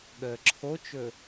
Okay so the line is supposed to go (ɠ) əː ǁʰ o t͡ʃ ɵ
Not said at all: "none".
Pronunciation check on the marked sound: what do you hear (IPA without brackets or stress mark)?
ɠ